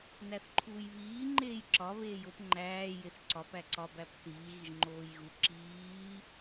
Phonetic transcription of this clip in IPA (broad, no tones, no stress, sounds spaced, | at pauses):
n æ θ ǃʰ uː j β iː ŋ͡ǃ eː j ǁ ɒ β eː j o p ŋ͡ǃ æː j e θ ǀ ɒ p æ ǀ ɒ b æ p θ iː ɣ i ʒ ŋ͡ǃ oː j ɣ u ǁ iː